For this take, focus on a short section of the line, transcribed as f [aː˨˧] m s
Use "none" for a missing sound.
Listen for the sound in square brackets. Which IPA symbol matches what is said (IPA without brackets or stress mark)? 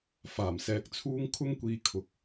aː˨˩